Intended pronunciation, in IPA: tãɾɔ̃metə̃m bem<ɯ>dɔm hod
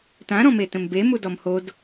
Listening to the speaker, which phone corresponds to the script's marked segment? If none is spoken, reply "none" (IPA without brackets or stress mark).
u